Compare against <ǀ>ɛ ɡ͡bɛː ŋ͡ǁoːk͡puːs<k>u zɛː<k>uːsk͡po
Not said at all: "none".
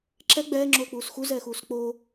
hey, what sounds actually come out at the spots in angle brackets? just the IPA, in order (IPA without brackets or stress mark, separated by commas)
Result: ǁ, x, x